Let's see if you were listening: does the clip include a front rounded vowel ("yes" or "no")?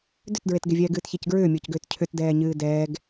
yes